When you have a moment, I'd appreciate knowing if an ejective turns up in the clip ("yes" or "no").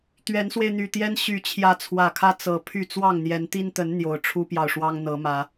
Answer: no